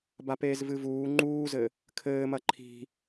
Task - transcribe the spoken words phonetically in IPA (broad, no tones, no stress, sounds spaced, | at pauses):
b a p eː z v ɨ v uː ŋ͡ǃ uː z ɘ | kʰ ɘː m ɐ ǃʰ i̤